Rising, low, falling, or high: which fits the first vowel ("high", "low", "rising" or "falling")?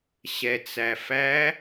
low